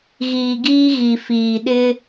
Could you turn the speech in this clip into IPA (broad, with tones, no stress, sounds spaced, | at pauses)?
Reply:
ɣ iː˨ ɡ iː˦ ɣ i˨ f iː˨ ɗ ɪ˦